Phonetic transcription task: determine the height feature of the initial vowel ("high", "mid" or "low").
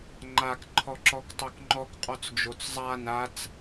low